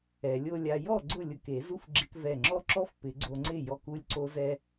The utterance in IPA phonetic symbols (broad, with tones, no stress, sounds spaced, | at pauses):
ɛ˨˩˦ lʲ o˧ lʲ a˧ j ɔ˥˩ ɡ͡ǀ ʊ˥˩ lʲ ʊ˧˩ k e˨˩˦ z u˦˥ f ɡ͡ǁ ɪ˧ k v ɛ˧˩ ŋ͡ǁ ɔ˦˥ ǁ ɔ˦˥ f p ɪ˨˩˦ ɡ͡ǀ o˧ ŋ͡ǀ ɪ˥˩ j ɔ˧˩ k u˧ lʲ ǀ o˧ z ɛ˧